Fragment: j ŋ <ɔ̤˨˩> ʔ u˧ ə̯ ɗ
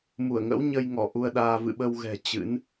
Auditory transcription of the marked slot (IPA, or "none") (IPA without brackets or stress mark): ɔ˧˩